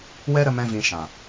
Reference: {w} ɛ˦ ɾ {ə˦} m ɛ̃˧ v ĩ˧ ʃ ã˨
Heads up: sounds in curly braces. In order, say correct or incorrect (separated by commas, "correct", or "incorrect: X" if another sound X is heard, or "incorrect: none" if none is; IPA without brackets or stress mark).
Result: correct, incorrect: ə˧